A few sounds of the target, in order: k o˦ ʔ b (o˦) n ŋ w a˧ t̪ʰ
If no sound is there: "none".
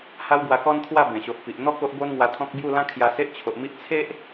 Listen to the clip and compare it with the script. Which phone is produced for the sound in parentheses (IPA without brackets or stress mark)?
o˦